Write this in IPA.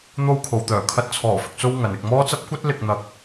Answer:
n̪o˧wkʰo˨wt̪œː˨˩ kʰɐ˧t̚t͡sʰɔː˨˩fɪ˨k̚t͡so˧w ŋɐ˨nɪ˧k̚mɔː˥t͡sɐ˥p̚ kʷɐ˥t̚lɪ˧k̚n̪ɐ˧k̚

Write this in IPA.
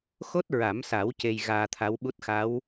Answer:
xo˦˥t̚ɹa˨˩˦msa˨˩˦w ce˧jɣaː˧t̪ʰa˧˥wɓu˦˥t̚ xa˧˥w

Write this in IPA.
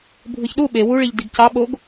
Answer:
bʱɯçɗu ɓe wuɭiʎ diɡcɑ ɓoɡ

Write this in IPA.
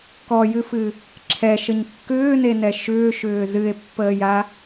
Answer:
kɔjɨfɨ | ǁʰɛʃəɲ kːʏːnenɛ ʃʏːʃʏː zɨe̯pːəːja

